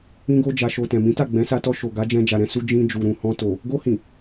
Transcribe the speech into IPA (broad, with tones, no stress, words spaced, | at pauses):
ĩ˧ɡo˧d͡ʒa˨ʃo˨ tɛ̃˨mĩ˨˦ ta˦˨ɡ͡bɛ̃˨˦sa˧tɔ˧ ʃo˨ɡa˨˦d͡ʒɛ̃˧ d͡ʒa˨ɾɛ̃˧su˧ d͡ʒĩ˧ d͡ʒu˨ɾũ˨hɔ̃˧to˨ | ɡo˧hĩ˨